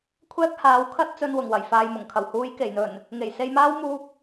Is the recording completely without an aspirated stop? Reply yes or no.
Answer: no